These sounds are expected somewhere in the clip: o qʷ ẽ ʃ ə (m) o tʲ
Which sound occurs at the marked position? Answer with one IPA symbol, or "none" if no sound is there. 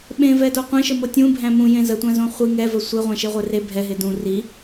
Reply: m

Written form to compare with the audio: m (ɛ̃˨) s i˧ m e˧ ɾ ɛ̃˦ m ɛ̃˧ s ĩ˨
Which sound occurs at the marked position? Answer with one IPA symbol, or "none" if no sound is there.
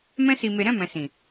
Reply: ɛ̃˦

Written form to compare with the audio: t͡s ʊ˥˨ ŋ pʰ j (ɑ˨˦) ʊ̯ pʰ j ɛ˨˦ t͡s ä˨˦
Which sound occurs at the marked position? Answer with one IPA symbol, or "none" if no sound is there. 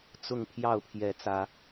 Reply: ɑ˥˨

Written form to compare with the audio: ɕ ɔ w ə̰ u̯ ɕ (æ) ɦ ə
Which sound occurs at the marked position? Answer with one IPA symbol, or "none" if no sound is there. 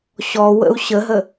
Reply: ə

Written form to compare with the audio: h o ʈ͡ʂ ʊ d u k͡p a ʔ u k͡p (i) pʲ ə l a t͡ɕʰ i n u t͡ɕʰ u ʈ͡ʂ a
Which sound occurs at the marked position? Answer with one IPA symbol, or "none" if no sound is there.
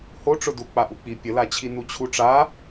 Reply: i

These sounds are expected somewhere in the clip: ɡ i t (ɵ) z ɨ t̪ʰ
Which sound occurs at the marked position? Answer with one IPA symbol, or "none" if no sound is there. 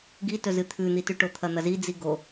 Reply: ɵ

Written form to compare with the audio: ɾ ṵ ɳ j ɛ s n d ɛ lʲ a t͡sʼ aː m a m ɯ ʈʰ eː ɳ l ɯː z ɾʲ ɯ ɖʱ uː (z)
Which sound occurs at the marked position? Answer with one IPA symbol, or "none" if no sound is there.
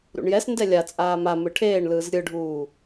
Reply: none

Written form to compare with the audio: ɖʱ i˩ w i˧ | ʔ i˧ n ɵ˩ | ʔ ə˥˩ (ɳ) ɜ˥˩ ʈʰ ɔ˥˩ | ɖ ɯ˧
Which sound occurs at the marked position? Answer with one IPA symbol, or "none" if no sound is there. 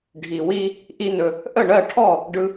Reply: ɳ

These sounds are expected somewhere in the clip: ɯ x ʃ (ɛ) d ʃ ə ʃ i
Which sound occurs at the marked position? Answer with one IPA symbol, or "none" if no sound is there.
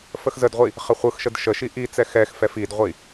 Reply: ə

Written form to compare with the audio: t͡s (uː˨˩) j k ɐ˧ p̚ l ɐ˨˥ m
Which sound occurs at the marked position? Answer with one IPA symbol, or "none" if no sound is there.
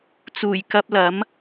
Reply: uː˨˩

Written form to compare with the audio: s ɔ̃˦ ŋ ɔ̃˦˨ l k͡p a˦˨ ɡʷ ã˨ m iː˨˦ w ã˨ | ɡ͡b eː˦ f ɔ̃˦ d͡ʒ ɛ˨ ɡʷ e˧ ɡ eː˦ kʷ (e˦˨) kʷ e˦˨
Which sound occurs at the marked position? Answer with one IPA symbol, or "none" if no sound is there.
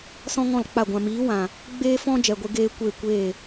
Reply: e˦˨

